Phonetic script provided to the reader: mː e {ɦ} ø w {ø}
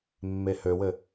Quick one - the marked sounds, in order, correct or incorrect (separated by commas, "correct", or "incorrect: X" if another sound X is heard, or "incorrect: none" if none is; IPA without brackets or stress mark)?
incorrect: h, incorrect: ɘ